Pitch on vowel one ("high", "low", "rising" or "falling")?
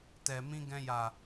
low